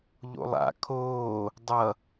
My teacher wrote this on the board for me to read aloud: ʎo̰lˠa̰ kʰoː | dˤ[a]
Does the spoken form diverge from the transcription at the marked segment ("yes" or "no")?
yes